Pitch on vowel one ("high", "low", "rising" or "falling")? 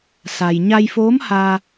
low